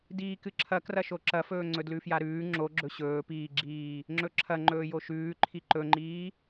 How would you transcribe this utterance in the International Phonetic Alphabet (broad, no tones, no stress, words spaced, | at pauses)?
diːkɨǁʰɐ krɐʃoǁɐfɵː ŋ͡ǀɵdlʉfjaɾʉː ŋ͡ǁo ɡ͡ǁɵɕɵːpiːɡ͡ǁiː | ŋ͡ǁɵǁʰɐ ŋ͡ǃɵːjoʃʉː ǃʰiǃɵŋ͡ǃiː